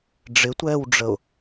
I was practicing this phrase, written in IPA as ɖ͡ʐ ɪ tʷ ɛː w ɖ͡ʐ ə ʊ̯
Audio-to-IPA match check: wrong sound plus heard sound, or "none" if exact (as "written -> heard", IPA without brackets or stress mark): none